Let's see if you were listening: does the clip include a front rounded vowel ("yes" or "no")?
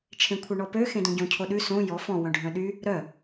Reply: yes